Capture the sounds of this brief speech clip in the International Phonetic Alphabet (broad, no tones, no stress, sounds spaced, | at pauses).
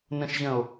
n ə̃ ʃ ʑ ə̃ o̯